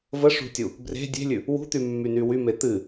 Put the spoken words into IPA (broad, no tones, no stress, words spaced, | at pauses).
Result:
vəʂṳtʲu | bre̤ dʲe̤lʲʉ | wṳt̪ymːyny wyme t̪ɨ